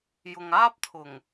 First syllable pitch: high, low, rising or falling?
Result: low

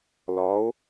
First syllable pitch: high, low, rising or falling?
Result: rising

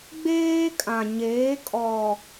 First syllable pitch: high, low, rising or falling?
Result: high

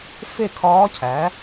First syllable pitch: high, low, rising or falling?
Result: falling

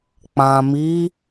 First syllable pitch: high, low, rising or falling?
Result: low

